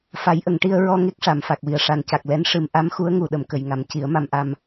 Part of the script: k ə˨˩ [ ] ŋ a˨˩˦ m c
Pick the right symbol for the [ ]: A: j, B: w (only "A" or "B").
A